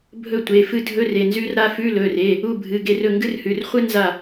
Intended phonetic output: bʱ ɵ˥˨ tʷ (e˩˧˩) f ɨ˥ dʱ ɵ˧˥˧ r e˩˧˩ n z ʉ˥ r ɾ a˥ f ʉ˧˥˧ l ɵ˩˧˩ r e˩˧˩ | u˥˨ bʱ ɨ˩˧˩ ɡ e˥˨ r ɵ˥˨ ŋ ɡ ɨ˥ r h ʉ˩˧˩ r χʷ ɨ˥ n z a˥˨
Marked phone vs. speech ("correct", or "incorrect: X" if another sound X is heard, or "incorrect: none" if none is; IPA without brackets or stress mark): correct